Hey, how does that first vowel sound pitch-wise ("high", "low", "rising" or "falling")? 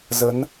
rising